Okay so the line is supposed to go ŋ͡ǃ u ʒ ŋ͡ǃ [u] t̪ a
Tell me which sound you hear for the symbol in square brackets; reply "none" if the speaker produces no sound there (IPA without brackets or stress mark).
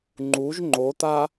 o